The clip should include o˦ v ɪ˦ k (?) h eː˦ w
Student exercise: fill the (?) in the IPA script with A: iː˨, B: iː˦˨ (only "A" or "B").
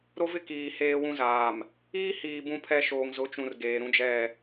A